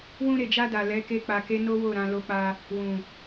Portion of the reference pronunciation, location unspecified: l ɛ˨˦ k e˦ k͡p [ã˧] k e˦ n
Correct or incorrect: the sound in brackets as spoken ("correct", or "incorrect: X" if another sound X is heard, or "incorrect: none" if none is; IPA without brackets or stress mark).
incorrect: a˧